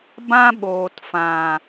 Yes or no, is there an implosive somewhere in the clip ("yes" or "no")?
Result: yes